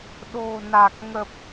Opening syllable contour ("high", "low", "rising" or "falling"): low